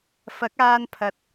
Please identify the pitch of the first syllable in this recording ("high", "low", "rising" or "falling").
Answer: rising